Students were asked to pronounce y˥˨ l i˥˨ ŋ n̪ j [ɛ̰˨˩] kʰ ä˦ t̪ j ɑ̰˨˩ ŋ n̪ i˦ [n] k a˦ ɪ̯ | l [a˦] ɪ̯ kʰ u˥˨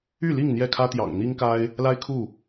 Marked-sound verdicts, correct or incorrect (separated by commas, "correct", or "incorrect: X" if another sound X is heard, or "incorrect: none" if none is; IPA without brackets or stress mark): incorrect: ɛ˥˨, incorrect: ŋ, correct